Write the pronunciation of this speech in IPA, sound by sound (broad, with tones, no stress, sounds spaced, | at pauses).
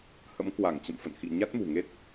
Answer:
h ə̰˧˥ m k w a˧˩ ŋ t͡ɕ ə̰˧˨ m f ə̰˧˨ n x ḭ˧˨ ɲ a˦˥ t̚ m ṳ˨˩ ŋ e˦˥ t̚